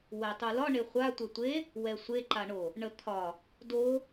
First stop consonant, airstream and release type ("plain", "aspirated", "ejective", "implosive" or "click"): plain